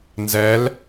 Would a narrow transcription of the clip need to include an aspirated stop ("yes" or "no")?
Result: no